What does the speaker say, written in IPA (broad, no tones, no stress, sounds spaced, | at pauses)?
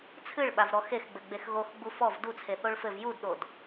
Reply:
t͡sʰ ɨ ɭ ɓ a v ɾ ɔ x e x ɡ͡b ɘ ɡ͡b e x ɣ o x ɡ͡b u f ɔ v d u t͡sʰ e θ o ɭ f ɘ v j u d ɗ o d